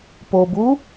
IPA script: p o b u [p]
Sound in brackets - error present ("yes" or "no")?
yes